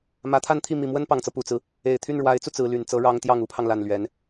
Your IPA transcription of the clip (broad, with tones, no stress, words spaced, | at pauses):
mä˧˥t̪ʰa˥˧nt̪ʰi˥˩ mi˨˩mwə˥npɑ˨˩ŋt͡sɤ˦ pu˨˩t͡sɹ̩˦ | e˨˩ɪ̯t̪ʰy˥˩nɻwa˧˥ɪ̯t͡su˧ t͡sɹ̩˧˥ly˨˩nt͡sɤ˥ ɻɑ˥ŋ t̪jɑ˥˩ŋu˧˥pʰɑ˧ŋ la˥˩nlɥɛ˧˥n